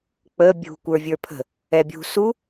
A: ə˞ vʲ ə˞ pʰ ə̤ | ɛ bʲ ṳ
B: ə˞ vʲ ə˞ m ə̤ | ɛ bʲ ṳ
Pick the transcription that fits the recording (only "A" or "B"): A